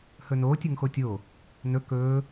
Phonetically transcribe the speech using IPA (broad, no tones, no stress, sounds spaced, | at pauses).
h ɵ n oː tʲ ɵ ŋ x o tʲ o | n ɵ k ɵː